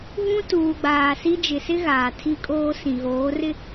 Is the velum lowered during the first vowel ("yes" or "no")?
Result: yes